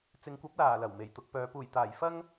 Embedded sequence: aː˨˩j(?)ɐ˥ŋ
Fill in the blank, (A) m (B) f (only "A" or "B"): B